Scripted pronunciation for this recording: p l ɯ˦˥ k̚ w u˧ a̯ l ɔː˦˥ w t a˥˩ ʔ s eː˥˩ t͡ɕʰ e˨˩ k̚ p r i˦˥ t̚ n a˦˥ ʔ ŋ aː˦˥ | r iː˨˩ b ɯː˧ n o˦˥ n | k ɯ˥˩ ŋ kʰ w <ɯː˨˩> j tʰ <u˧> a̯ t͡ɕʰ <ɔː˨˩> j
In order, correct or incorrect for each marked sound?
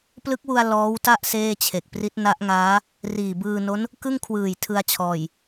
correct, incorrect, correct

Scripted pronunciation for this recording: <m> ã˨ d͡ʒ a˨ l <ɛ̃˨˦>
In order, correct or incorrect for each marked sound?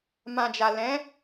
correct, correct

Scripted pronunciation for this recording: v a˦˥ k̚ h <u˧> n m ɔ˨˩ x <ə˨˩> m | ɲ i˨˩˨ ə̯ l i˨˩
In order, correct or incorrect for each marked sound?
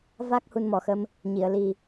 correct, incorrect

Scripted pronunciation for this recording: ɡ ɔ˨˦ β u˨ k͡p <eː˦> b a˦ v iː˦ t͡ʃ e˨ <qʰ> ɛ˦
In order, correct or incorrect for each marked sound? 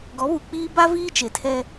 incorrect, incorrect

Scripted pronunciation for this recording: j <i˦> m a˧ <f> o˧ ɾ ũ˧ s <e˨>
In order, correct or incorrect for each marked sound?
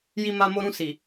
incorrect, incorrect, incorrect

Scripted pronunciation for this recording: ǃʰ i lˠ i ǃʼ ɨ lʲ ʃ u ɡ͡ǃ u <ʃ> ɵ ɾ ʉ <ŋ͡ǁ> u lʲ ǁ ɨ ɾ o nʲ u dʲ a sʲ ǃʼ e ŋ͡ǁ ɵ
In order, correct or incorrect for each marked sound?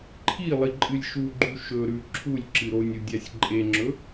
correct, incorrect

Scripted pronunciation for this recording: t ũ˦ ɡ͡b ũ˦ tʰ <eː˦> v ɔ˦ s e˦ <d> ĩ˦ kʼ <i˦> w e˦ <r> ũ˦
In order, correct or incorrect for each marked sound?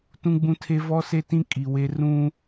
incorrect, incorrect, incorrect, correct

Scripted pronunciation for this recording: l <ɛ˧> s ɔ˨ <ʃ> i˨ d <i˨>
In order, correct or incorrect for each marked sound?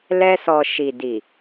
correct, correct, correct

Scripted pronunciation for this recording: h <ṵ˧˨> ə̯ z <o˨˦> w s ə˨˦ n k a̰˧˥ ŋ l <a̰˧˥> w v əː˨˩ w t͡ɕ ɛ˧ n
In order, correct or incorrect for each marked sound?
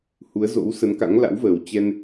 incorrect, incorrect, correct

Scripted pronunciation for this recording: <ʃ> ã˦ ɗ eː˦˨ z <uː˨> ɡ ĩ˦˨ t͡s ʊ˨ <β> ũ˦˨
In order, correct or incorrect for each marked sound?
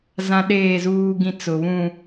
incorrect, incorrect, correct

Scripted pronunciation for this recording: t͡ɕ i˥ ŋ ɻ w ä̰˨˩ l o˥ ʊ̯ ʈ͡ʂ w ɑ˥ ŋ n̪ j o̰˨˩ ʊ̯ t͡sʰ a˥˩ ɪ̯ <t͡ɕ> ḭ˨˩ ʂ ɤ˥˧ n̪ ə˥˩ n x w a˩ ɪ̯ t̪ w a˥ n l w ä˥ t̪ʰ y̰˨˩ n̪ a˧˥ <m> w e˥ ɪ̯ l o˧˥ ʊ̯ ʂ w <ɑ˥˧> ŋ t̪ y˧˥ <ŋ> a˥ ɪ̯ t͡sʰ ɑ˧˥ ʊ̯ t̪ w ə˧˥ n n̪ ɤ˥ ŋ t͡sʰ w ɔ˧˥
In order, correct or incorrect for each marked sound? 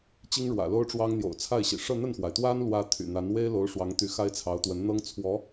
incorrect, incorrect, incorrect, incorrect

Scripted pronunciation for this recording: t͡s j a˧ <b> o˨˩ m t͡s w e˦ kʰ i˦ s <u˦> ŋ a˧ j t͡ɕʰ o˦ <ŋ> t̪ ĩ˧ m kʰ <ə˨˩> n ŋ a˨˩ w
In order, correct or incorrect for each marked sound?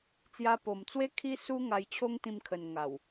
incorrect, correct, correct, correct

